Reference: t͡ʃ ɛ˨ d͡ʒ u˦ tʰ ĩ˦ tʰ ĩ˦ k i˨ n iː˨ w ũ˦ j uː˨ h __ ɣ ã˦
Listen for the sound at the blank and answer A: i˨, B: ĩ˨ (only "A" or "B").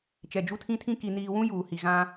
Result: A